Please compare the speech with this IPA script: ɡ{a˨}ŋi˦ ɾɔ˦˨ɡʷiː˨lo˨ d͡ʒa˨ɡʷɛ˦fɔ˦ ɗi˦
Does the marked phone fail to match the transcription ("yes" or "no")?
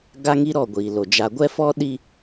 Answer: yes